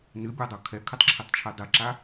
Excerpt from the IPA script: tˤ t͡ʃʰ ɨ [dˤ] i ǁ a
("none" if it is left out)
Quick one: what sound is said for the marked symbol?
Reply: dˤ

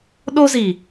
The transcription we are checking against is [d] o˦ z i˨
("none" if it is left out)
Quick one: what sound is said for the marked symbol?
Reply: ɗ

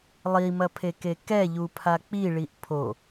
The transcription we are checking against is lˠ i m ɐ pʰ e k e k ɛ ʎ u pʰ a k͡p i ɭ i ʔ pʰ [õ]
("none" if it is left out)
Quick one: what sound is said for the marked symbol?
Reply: o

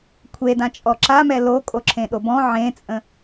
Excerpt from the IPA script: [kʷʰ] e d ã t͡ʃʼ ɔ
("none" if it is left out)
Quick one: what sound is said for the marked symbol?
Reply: kʷʰ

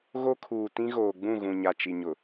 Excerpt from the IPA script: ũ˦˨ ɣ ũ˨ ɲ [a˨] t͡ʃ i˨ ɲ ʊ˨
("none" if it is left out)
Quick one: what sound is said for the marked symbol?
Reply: a˨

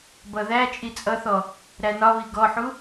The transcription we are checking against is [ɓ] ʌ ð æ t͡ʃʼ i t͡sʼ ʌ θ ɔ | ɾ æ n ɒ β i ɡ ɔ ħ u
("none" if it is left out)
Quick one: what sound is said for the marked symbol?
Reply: b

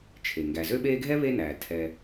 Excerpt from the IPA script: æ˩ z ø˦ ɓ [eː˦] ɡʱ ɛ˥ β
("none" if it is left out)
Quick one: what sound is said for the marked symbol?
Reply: eː˦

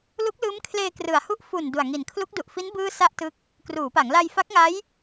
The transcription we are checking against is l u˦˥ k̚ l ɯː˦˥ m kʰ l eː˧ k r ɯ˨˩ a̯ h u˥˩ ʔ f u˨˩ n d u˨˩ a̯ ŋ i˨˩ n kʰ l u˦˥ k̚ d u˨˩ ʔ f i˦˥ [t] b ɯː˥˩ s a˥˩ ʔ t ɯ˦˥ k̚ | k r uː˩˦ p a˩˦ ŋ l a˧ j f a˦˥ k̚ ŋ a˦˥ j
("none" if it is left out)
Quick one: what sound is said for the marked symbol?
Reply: n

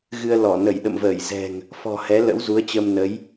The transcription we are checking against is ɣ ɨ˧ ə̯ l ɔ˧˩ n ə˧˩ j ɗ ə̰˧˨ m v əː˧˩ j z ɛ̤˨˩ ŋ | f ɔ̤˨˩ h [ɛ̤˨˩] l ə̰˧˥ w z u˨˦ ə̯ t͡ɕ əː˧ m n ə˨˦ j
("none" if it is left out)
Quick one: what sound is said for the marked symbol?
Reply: ɛ˨˦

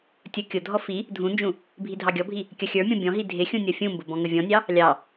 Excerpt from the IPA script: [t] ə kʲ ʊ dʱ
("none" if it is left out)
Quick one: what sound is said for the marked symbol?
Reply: tʲ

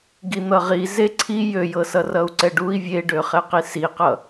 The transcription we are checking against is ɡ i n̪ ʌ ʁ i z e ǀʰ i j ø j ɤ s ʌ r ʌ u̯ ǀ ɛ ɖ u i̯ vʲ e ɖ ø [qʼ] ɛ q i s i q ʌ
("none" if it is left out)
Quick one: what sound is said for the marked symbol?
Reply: χ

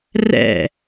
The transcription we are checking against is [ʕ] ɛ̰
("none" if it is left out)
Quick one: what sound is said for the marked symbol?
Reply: r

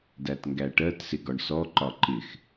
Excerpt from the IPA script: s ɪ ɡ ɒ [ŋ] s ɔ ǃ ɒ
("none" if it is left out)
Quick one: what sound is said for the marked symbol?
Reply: ɳ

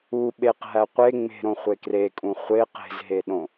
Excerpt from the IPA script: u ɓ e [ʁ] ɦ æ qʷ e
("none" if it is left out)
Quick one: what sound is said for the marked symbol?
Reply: q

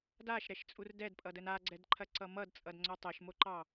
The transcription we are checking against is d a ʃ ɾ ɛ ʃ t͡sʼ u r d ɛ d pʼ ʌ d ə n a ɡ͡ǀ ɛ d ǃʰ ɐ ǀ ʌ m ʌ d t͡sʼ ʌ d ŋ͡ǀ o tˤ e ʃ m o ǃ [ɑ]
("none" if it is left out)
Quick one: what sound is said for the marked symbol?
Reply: ɑ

